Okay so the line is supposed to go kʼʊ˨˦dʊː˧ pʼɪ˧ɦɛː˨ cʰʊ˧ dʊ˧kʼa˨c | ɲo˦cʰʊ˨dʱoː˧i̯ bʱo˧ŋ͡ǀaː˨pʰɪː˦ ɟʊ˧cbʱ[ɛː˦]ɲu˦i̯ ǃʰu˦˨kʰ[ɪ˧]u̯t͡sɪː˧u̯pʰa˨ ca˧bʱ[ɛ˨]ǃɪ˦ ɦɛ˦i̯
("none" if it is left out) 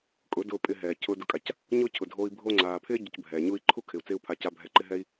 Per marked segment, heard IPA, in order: ɛː˨, ɪ˨, ɛ˧

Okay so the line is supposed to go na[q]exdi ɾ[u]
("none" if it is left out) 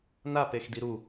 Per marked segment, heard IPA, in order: p, u

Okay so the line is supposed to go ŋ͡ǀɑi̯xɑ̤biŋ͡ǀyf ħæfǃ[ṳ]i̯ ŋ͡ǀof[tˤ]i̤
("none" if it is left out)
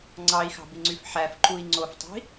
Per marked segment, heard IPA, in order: u, tˤ

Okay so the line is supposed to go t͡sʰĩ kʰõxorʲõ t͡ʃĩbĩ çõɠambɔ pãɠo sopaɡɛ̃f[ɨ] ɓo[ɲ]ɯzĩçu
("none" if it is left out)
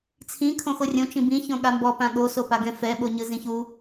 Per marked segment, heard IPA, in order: ɛ, ɲ

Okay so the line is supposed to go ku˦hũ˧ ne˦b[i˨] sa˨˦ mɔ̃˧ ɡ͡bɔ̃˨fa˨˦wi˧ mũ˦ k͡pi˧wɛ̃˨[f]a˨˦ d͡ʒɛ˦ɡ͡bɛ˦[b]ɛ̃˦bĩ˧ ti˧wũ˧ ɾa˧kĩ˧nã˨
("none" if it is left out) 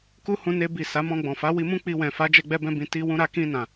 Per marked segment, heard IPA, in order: i˦˨, f, b

